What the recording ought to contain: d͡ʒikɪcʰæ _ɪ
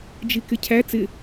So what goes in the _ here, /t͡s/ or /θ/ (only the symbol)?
t͡s